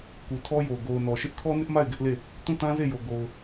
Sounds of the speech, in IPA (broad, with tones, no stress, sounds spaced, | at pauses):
k u˨ tʰ ɔ˦ j o˨ ɡ o˨ ʊ̯ n ɔ˨ ʃ ɪ˦ ʔ kʰ ɔ˦ n ɪ˦ ʔ m a˦˨ ɪ̯ ɡ ɪ˦ ʔ l e˦˨ | t ũ˦˨ t ã˦ z e˦˨ j o˨ ɡ o˨ ʊ̯